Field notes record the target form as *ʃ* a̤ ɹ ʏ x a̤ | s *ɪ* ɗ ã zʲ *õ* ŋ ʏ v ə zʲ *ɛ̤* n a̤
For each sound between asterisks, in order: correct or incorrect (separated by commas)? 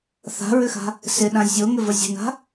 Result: incorrect, correct, incorrect, incorrect